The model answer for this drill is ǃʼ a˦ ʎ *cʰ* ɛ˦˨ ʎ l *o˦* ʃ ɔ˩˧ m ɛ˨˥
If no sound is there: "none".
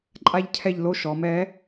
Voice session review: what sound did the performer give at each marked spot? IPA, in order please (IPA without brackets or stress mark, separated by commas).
cʰ, o˦